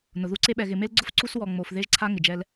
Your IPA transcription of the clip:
nʊ˨ðu˦ǀe˦ ɓɛ˨ɣɪ˨me˦lɡ͡ǀʊ˦f ǀu˦swɔ˨ŋ͡mo˨f ðe˦ʒǀʰa˦ ŋɪ˨d͡ʒɛ˦l

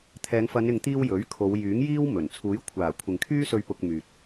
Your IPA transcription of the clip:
t̪ʰɛː˨˧ŋ fɐ˨˧nɪ˨ŋt̪iː˧w jɵ˨˥ɥkʰo˨˧w jyː˨˥ŋ jiː˥w mɵ˨˩n t͡sʰuː˨˥jkʷʰaː˨˩ kʷʰɪ˨ŋkʰyː˥sɵ˧ɥ pʊ˧k̚myː˨t̚

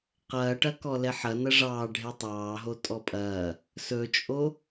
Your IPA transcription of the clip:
qɐːʈɐ kɔlɛħɐ nɐʐɑːɖʱe tˤɑːɦo tʼɔpʼɐː | sɵt͡ʃʼo

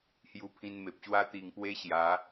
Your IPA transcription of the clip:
hju˧pʰĩ˧nme˨p̚ ɕwa˦t̪i˧ŋpwe˦ɕja˨˦

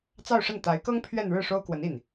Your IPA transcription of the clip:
t͡sɑ˥˧ʊ̯ʂə˥˩n t̪a˧˥ɪ̯kɤ˥ŋ pʰɥɛ˥˧n ɻɻ̩˥˩ʂo˥ʊ̯kwə˧˥n i˥˩n

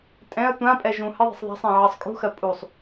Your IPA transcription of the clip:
tʼɛ̃ɐ̯ tʷãpʼɛ ʒũ hɘðˤɛ̤sˤ ðˤa̤sˤẽ ʕɜsˤkʼṳxɜ pʼusˤ

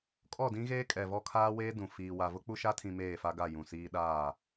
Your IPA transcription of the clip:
kʼɔ˦˨dĩ˦ɣeː˦ kʼɛ˨ vɔ˦kʰaː˦weː˦dũ˨ fiː˨wa˨ vʊ˦k͡pu˦ʃa˦tʰĩ˨ meː˦˨fa˦ɡa˦˨ jũ˨siː˦ ɗaː˦˨

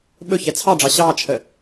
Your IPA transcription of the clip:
ɓɵ çɛt͡sʰɑɖ͡ʐɑ ɕɑːt͡ʃʰə

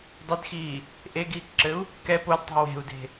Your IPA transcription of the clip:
dˤɘdxiː | ʔeɡiːkǁɘu̯ | kɛ podtˤṳ we̤u̯de̤

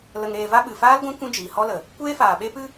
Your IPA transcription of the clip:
lə˧ŋɾeː˧va˦ ɓɨ˨faː˦lɡʷã˦ kʷũ˦d͡ʒiː˨hɔ˦lə˨ | kʷeː˦faː˨ɓe˦pɨ˦

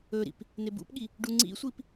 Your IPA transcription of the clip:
ɵɾḭp | nebṵpɠi | ɖuŋ͡ǀḭsʷip

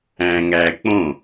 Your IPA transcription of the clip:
æ̃ŋæk͡põ

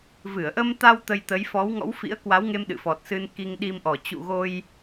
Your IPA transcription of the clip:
vɨ˧˩ə̯ʔə˧mt̪a˧w t̪ə˧jt̪ə˨˦j fɔ˨˦wŋɔ̰˧˥w fḭ˧˥ə̯kwa˨˦wŋe˧m ɗɨ̰˧˨fɔ˨˩t̚sɨ˧n ki˧ŋɗi˧mʔɔ˨˩ t͡ɕṵ˧˨ɣo˧j

